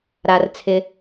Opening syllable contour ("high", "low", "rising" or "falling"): low